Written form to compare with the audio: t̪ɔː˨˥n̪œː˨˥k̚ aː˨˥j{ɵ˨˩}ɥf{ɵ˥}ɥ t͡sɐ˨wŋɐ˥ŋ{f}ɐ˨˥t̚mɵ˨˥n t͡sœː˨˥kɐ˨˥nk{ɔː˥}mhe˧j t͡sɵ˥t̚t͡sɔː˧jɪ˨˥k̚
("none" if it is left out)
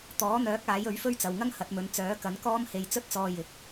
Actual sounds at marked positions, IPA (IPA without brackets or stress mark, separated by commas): ɵ˨˥, ɵ˥, h, ɔː˥